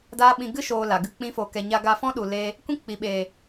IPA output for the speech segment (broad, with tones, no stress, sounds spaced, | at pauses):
d aː˦ ɓ ĩ˧ ɡ ɨ˦ ʃ oː˨ l a˨ ɡ ɨ˦ k͡p ĩ˦ f o˧ k ɛ˨ ɲ a˧ ɡ a˧ f ɔ̃˦ ɗ u˨ l eː˧ | kʷ ĩ˦ k͡p i˨ ɓ eː˨